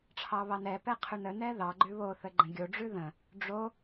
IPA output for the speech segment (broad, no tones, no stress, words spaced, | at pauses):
ʈ͡ʂʰɑβɑnɛpɛ qʰʉnənɛ ðɑɡ͡ǃʉ βoθə ɡ͡ǃə̃ɡʲoɖ͡ʐʉ ðə̃ | ɖ͡ʐo